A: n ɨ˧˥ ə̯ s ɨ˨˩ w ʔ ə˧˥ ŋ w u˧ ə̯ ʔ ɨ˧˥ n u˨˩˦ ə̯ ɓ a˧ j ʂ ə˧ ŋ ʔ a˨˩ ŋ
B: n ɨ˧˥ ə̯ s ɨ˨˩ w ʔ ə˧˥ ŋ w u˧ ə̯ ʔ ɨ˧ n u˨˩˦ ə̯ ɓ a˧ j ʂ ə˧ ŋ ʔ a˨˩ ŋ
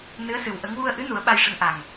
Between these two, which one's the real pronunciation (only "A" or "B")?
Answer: A